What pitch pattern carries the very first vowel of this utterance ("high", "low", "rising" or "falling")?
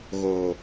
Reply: low